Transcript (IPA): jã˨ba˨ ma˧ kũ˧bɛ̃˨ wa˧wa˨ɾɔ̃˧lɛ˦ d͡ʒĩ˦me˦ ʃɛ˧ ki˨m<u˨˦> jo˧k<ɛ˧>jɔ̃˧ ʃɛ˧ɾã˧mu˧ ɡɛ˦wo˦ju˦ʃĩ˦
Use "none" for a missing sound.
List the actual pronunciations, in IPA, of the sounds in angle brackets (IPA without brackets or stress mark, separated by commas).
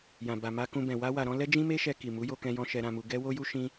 u˨˦, ɛ̃˧